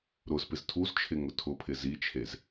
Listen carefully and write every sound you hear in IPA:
ɾʊzpɪz tʰuzt͡ʃʰɪ ŋʊtʰʊpʰɪ zit͡ʃʰez

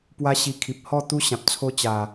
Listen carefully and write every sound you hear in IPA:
pwa˦ɕi˧kʰi˨p̚ hɔ˥˧ t̪u˦ ɕã˨p̚t͡sʰo˦ t͡ɕa˨˩

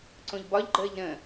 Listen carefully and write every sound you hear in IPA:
ǀõʎbɒʎɡ͡ǃəːʎ ɾə̃

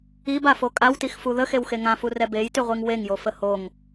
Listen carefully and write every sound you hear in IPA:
ibafo kʼawtixfu ðəxewxe ŋãfurɛ bejtyʁʷiŋ weŋjofə hoŋ

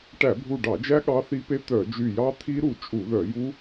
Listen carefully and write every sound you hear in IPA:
ʈæ˧˩˧bʱu˧˩ɖɑ˧˩˧d͡ʒæ˦˥ ɠɑ˦˥θi˦˥pe˦˥ t̪œ˧˩˧d͡ʒy˧˩jɑ˦˥ t̪ʰi˦˥ɾu˧˩t͡ʃʼu˧˩˧ðœ˧˩˧ ju˦˥

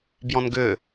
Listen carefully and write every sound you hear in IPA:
bjɔ̃nɡʏː

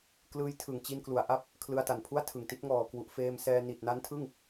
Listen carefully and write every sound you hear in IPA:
klɯː˦˥jtʰɯ˨˩ŋ t͡ɕi˧nklu˩˦a̯ʔa˦˥p̚ | kʰlɯ˧a̯ta˨˩npʰu˥˩a̯ tʰɯ˨˩ŋti˦˥t̚ ŋɔː˨˩kwu˨˩ʔ feː˧msɛː˧ ni˨˩t̚na˦˥ntʰɯ˥˩ŋ

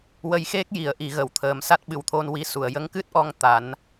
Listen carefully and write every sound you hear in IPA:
wə˧jxe˦˥k̚ ji˨˩˦ə̯ ʔi˨˩˦ɣə˨˩˨wt̪ʰəː˨˩˦msa˦˥t̚ ɓɨ˨˩wt̪ʰo˧nwi˧ su˨˩˨ə̯jə˧˥ŋkɨ˦˥t̚ʔɔ˧ŋ t̪a˨˩˦n

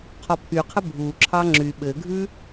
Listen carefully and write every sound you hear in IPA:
qʰɔpʰyqʰə bʱuǁʰɑ ŋ͡ǁy ɓɘɡʱʉ

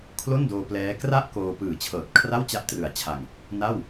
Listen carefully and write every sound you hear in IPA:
kʰlo˥˩ndoː˧plɛː˦˥ kra˥˩ʔ koː˧ pɯː˨˩t͡ɕʰɤː˨˩t̚ kʰra˥˩wt͡ɕa˦˥ʔtrɯ˨˩a̯t͡ɕʰa˧ŋ | na˥˩w

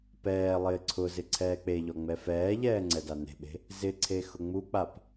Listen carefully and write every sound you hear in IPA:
pɛːlˠɪː ǀʰʊ zɪǀʰɛːk͡peʎɔ ŋ͡mɛfɛːʎɛː ŋ͡ǀɛdane̤ɓe̤ | zɪǀʰe xʊŋ͡muk͡pap

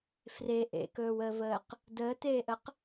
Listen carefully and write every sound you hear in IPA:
fre ʔḛkɵːwəːvəːq | dəːteːʔəq

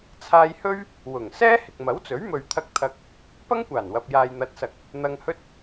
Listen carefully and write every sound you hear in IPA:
t͡sʰaː˧jhɵ˥ɥ | wʊ˨˩ŋ sɛː˥ hɪ˨k̚mɐ˨˥wt͡sɵ˨˥ɥmɵ˨ɥ t̪ʰɐ˧k̚t̪ʰɐ˧k̚ | pɐ˥ŋkʷaː˨˩nwɐ˨p̚ jaː˨j n̪ɐ˨˥t̚sɐ˨k̚ | n̪ɐ˧ŋhɵ˥t̚

